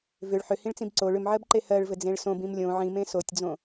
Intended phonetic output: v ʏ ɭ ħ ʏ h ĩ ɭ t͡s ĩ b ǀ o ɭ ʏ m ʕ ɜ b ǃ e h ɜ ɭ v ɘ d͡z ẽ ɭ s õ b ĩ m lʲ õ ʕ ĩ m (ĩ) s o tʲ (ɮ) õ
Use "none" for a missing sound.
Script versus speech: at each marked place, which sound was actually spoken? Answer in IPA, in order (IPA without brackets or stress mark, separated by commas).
ẽ, d͡z